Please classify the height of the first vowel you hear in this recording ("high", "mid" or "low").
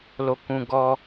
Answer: mid